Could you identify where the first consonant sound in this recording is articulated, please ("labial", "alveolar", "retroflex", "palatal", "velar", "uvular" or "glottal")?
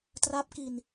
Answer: alveolar